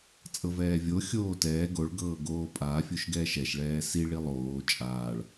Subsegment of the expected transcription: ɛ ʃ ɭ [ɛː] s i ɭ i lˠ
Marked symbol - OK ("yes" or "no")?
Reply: yes